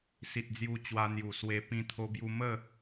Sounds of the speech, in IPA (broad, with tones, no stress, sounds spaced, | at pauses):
s i˨ t̚ d͡z j u˧ t͡ɕ w a˧ n̪ j u˨˩ s w e˧ p ĩ˧ t̪ʰ o˧ b j u˧ m ə˥˧